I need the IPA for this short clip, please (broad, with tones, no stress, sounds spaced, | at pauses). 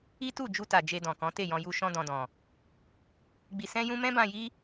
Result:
i˦ t u˦˨ d͡ʒ u˧ t a˨ d͡ʒ e˧ d ɔ̃˨ k ɔ̃˨˦ t e˦˨ j ɔ̃˧ j u˧ ʃ ɔ̃˧ d ɔ̃˨ d ɔ̃˨ | ɡ͡b i˧ s ɛ̃˦ j ũ˦ m ɛ̃˦ b ã˧ j i˦